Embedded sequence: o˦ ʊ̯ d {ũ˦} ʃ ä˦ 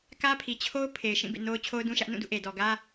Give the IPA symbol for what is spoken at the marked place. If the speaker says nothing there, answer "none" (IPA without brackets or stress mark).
ũ˦